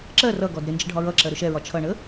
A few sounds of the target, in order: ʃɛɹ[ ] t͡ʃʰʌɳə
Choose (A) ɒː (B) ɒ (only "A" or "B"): B